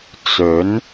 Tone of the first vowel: rising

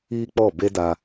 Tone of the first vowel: high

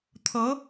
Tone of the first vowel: rising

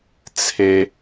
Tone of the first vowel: high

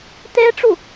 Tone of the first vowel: high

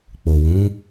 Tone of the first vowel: low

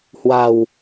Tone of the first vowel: low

